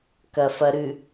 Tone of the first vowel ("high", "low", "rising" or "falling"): low